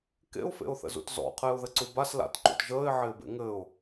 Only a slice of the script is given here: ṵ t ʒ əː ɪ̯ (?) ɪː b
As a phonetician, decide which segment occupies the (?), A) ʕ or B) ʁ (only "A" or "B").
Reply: A